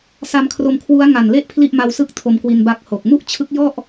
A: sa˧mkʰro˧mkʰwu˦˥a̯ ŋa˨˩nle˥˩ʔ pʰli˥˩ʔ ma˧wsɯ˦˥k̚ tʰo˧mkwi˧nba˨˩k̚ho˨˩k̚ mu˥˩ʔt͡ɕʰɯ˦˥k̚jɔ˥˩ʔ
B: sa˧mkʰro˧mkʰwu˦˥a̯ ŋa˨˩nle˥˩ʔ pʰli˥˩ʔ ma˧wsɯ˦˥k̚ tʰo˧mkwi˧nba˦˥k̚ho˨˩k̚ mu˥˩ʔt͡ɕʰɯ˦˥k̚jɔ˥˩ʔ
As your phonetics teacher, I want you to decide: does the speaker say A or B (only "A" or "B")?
B